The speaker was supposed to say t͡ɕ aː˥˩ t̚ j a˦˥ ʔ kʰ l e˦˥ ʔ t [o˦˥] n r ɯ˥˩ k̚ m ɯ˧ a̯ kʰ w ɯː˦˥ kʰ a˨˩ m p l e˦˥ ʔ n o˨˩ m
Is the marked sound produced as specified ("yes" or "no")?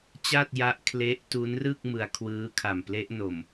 no